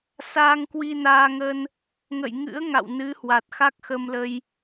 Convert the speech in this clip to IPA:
saː˧ŋkwi˧naː˧ ŋə˧n | ŋə̰˧˨jŋɨ̰˧˥ə̯ ŋa̰˧˨wnɨ˨˦hwa˨˩t̚ xa˦˥k̚xə˧mlə˧j

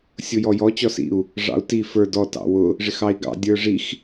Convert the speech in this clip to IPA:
sʲʊjɔjɔ t͡ɕɔsḭu̯ | ʐɑ̰u̯ti fə˞ dɔ tɑ̰wʊ | ʐɪxɑi̯ɡɑ̰ dʲə˞ʐix

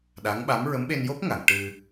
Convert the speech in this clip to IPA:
ɗa˧˥ŋɓa˧˥m ɹə˧˥mɓe˧njo˦˥p̚ŋa˨˩˨ŋ ʈɨ˧

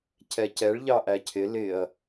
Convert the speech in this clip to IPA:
cʰɛcɛɭ ʎɑʔæcʰɪ lɪɐ̯

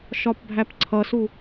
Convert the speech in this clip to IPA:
ʃɒpbʱæpǀʰʌsu

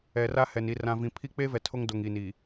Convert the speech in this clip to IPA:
ɛ˨ra˦hɛ˨n i˨rã˨vĩ˨pʰi˦ k͡pe˦vɛ˨ tʰo˦ŋdo˨ŋ i˨ni˨

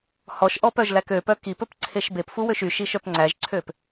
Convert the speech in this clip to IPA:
hɔʃʔɔpœʒlæk øpœ kipɵpǀʰeʃ bepfuwøʃ yʃiʃœp ŋ͡ǀæʒǀʰøp

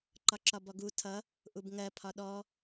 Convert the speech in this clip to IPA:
ǃɒǁɒbɔɡu tʰʌ | ʔubŋɜ pʰɒɗɔ

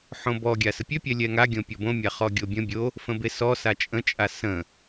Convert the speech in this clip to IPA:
ħõbɔ ɡʲasəpʲø pʲɛlʲɛŋa ɡʲõpʲɔbõ mʲaχɔɡʲobʲə̃ bʲo | fə̃besɔ sat͡ʃʼə̃ t͡ʃʼasə̃

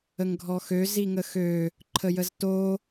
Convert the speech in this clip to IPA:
əŋɡʱɔxø ziŋəxø | ǃʰəjəzto

